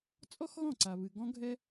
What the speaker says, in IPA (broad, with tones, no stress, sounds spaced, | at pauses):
t͡sʼ ɔ˦ x ɣ ɔ̃˦˨ ǀ a˨ β ɨ˨ ɡ ɔ̃˦ ɡʱ ɛ˦